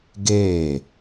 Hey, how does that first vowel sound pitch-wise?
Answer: falling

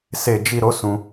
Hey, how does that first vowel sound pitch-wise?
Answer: low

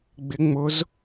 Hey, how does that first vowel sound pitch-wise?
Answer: rising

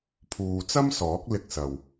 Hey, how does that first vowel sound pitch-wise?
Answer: low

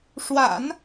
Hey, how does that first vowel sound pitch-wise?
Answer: low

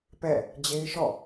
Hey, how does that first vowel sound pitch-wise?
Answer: falling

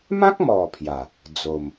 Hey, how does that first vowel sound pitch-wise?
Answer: high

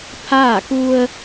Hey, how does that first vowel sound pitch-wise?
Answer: falling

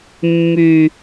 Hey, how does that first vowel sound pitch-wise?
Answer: low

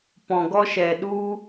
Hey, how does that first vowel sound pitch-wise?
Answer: low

